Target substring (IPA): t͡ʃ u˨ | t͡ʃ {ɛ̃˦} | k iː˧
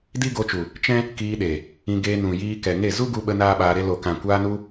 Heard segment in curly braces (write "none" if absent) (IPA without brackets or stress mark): ɛ̃˦